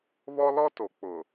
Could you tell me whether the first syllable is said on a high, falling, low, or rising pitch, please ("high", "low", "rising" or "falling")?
high